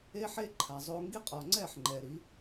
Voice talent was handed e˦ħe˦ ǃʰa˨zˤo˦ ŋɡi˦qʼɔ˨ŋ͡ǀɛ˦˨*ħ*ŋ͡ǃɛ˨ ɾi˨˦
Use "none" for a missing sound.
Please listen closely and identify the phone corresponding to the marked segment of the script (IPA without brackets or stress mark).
ħ